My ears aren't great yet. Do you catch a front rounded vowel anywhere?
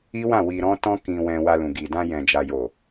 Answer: no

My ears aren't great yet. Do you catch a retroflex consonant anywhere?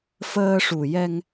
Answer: yes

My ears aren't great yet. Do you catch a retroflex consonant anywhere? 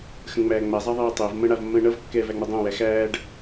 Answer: yes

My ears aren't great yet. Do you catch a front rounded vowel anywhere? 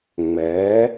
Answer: no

